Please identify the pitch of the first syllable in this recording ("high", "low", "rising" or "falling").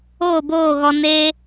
falling